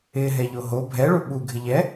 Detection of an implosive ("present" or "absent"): present